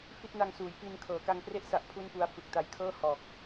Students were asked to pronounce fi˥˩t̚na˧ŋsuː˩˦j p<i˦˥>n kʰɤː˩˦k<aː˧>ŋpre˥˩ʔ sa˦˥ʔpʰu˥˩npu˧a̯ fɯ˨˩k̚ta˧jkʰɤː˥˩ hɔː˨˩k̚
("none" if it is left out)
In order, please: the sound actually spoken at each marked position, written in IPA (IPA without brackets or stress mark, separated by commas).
i˧, a˧